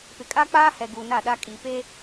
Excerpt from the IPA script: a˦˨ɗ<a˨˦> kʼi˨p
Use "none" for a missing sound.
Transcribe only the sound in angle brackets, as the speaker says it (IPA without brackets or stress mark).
a˦